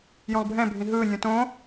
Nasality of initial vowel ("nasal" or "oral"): nasal